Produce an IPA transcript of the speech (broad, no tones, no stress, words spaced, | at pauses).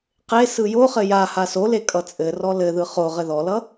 qe sɯjoχɘ ja hasole kʼʌt͡sʼɘrɔ lɘðɯ χo ʁɘðɔlʌ